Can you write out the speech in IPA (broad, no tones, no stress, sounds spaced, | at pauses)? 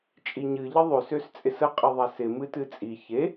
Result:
t͡ʃʼ i ɲ ɨ ʎ ɪ ðˤ ø s ø s t͡sʼ ɪ s ə qʼ ɪ ðˤ a s ɪ m ɨ t ɨ t͡sʼ i ç e